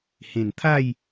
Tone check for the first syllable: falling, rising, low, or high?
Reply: low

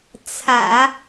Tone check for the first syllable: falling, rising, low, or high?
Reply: low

